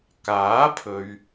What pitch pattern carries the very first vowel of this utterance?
rising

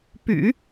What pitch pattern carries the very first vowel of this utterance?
low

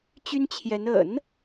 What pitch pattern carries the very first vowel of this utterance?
high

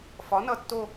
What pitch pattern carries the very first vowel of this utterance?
rising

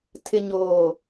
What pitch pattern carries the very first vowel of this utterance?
low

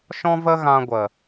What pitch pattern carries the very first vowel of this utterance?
high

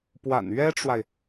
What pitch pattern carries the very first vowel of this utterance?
low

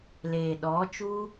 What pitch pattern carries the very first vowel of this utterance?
low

